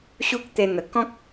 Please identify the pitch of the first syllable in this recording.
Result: high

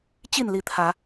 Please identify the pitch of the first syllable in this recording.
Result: falling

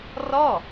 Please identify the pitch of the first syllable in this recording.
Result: falling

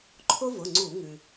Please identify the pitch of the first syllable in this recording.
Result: high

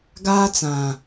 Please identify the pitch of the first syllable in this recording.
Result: high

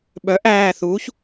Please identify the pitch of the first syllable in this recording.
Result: rising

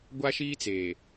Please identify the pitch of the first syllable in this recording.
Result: high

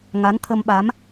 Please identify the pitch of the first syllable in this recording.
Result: rising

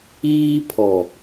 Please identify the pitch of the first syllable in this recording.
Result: high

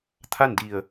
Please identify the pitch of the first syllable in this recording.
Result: falling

